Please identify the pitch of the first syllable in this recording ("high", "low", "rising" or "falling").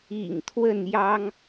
low